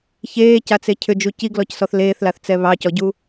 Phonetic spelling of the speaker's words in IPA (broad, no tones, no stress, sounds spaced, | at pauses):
ç eː c a t͡s e cʰ ʏ d͡ʒ u c i ɡ l ɔ c s ɔ θ l eː θ l a θ t͡s ɛ β ɑ c ɔ ɟ u